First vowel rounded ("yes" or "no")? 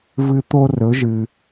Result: no